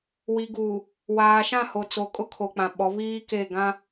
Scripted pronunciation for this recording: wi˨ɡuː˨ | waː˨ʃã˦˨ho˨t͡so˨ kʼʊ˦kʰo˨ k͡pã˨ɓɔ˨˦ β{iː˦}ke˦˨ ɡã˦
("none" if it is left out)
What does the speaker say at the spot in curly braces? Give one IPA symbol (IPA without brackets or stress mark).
iː˦